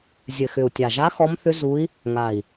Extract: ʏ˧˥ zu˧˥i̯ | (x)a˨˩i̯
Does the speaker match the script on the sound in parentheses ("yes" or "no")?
no